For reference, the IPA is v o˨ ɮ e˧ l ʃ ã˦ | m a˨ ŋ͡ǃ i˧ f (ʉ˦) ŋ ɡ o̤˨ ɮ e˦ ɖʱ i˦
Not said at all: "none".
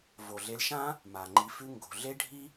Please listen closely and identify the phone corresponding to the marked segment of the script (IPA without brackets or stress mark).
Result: ʉ˦